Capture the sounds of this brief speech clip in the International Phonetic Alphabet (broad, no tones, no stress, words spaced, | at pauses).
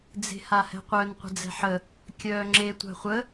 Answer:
d͡ze̤hahɛ̤qʷœn qʷə̤d͡zɛ̤ħə | kʲœːŋ͡ǁe tʷa̤χʷə